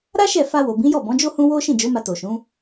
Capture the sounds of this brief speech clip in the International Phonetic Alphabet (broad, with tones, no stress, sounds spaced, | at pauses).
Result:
ɾ a˦ ʃ ɛ˦˨ f a˧ w o˨ b ĩ˨˦ j ɔ˦˨ b ɔ̃˨˦ d͡ʒ o˦ h ũ˦ w o˦ ʃ ĩ˦˨ d͡ʒ o˨˦ m a˧ t o˨ ʃ ũ˨˦